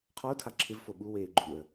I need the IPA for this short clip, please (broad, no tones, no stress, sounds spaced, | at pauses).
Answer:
qʰ ɔ ʊ̯ tʰ a ǁʰ ɪ v f o ɓ u w eː ɡ͡ǃ u ə̯